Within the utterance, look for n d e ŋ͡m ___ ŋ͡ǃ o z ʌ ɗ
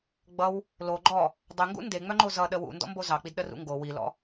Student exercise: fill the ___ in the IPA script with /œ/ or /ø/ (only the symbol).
œ